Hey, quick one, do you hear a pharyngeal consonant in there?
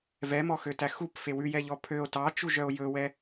no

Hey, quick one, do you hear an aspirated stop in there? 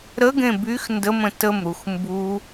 no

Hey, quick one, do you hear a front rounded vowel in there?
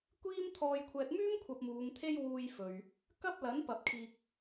yes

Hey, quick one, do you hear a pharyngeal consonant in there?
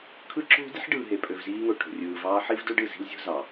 yes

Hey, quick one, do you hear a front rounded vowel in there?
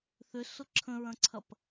yes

